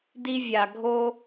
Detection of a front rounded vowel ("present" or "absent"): absent